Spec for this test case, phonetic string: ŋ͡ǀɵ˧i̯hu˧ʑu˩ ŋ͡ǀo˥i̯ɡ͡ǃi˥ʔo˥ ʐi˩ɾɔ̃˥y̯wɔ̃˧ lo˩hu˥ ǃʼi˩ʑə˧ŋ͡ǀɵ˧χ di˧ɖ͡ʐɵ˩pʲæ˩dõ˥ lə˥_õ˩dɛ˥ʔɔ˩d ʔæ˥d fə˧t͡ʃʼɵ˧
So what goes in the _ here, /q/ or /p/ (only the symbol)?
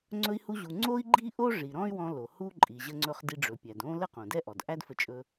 q